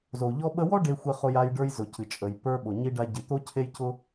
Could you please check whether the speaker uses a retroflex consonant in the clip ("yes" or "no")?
yes